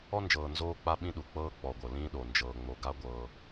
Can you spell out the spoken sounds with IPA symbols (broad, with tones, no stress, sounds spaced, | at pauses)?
ɔ˦ n d͡ʒ ɤː˨ n z oː˦ k͡p a˦ ɓ ĩ˦ ɗ u˨ k͡p ɤː˦ k͡p ɔ˨ ɡʷ ɤ˨ l ĩː˦ ɗ o˨ n d͡ʒ ɤː˨ ŋ͡m o˨ ɡ a˦ ɡʷ ɤː˦